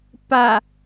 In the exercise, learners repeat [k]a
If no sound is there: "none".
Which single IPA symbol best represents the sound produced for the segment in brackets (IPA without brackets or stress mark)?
p